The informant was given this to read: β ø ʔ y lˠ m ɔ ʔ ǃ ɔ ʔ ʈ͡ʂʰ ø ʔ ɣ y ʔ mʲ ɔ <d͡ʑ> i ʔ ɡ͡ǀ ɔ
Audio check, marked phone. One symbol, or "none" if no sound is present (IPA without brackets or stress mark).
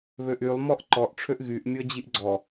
d͡ʑ